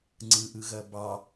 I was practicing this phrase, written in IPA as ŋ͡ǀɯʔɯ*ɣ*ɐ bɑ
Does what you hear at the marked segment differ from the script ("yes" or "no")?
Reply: no